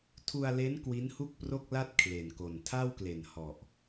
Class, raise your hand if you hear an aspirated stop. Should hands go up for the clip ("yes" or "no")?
yes